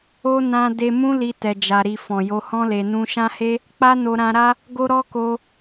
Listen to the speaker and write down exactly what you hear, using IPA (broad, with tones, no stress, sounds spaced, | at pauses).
o˧ n ã˧ d e˧ m ũ˦ l i˧ t ɛ˧ d͡ʒ a˧ ɾ i˧ f ɔ̃˨ j o˧ h ɔ̃˦ l e˧ n ũ˧ ʃ ã˦ h e˦ | k͡p a˦ n o˧ ɾ ã˧ ɾ a˦ | ɡ o˦ ɾ ɔ˦ k o˧